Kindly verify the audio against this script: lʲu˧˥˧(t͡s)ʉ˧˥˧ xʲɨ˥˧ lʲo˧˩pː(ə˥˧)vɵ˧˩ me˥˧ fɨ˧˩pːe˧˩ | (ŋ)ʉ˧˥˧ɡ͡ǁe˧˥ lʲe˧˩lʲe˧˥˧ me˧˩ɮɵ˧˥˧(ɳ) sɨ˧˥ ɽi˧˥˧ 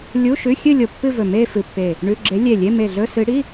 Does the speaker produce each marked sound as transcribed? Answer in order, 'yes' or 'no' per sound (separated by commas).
no, no, no, no